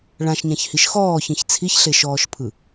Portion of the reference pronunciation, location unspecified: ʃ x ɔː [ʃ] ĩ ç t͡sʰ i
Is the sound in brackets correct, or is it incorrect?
incorrect